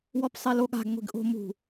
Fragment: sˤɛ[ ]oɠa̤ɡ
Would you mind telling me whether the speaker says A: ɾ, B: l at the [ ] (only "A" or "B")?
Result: B